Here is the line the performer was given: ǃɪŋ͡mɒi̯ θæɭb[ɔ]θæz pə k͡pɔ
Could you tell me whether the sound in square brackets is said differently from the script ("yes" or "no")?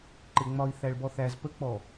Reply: no